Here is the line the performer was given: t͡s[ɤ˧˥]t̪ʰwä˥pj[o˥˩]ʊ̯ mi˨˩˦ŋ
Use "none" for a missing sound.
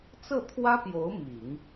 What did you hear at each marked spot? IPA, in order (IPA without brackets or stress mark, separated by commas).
ɤ˥˩, o˧˥